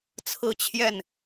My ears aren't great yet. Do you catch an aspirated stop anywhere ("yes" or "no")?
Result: yes